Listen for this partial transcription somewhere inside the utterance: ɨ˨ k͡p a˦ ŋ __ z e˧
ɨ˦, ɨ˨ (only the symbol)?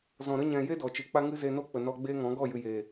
ɨ˦